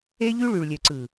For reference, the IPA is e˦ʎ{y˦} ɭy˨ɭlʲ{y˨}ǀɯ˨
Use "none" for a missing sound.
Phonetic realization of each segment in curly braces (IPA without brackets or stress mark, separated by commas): y˦, ø˨